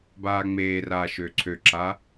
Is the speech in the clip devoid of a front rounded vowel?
no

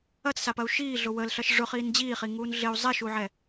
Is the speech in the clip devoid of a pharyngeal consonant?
no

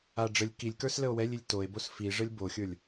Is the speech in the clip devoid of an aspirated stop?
yes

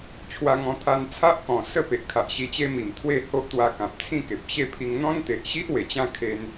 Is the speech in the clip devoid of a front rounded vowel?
yes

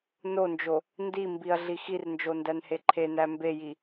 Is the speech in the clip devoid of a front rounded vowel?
yes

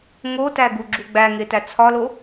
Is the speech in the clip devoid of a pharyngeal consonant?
yes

